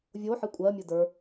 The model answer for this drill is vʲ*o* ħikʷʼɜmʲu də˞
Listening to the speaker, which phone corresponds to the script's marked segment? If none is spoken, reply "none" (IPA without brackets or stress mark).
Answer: o